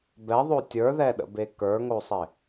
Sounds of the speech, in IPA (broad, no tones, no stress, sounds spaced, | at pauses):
b ɛ ðˤ o tʲ ə˞ ð ɛ ɗ ə̰ b e k ə˞ ŋ o sˤ ɪ